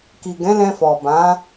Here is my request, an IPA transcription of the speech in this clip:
k i˨ ɡ ɛ̃˨˦ l ɛ̃˧ f ɔ˨ b ã˨˦

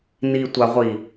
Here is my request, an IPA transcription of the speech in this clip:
n i tʷ a ʁʷ i

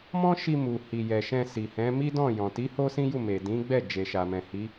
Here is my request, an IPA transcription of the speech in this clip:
m ɔ̃˦ ʃ i˧ m u˨ h i˨ j ɛ˨ ʃ ɛ̃˧ s i˨ h ɛ̃˨˦ m i˦ d ɔ̃˦˨ j ɔ̃˨ t i˨˦ h o˦ s ĩ˦ j u˦˨ m e˨ d ĩ˨˦ ɡ͡b ɛ˦˨ d͡ʒ e˨ ʃ a˨ m ɛ̃˨ h i˨˦

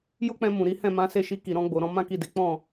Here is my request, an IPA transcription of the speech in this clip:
j o˦ k͡p ɛ̃˧ m ũ˨ ɾ i˨˦ h ɛ̃˦˨ m ã˨˦ s e˦˨ ʃ i˧ k i˨ ɾ ɔ̃˧ ɡ͡b o˨ ɾ ɔ̃˧ m ã˦ k i˦˨ d e˨˦ k͡p ɔ̃˦˨

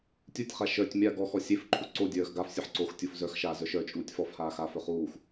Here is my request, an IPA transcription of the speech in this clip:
tʲ u tʲ χ a ʃ œ tʲ mʲ a ɡ ɔ x ɔ sʲ e f ǃʰ u ǀ o dʲ œː x ɡ a f sʲ œ ħ ǀ o x tʲ u f z œ x ʃ aː z œ ʃ œ t͡ʃʼ uː tʲ f ɔ f h aː x aː f œ χ uː x

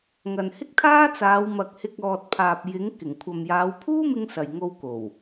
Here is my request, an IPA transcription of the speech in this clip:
ŋ ɐ˨ n h ɪ˥ k̚ t̪ʰ aː˥ t͡s aː˨˧ w m ɐ˨ k̚ h ɪ˧ k̚ ɔː˨ t̚ pʰ aː˨ p̚ j ɪ˨˥ ŋ k ɪ˨˩ ŋ kʷʰ ɐ˨ m j aː˨˧ w pʰ uː˥ m ɪ˧ ŋ s ɐ˨ j ŋ o˧ w k o˨˩ w

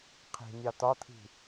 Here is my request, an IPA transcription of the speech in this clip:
qʰ i̤ nʲ ɑ t̪ ɒ t̪ʰ i̤

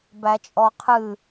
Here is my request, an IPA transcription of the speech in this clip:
b æ t͡ʃʼ ɔ qʰ ɨ

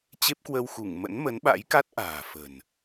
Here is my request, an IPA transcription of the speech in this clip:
t͡ɕ e˦˥ p̚ k w əː˧ w x u˧˩ ŋ m ə̰˧˥ n m ə˨˦ n ɓ a̰˧˥ j k a˦˥ t̚ ʔ a̤ː˨˩ f ə̤˨˩ n

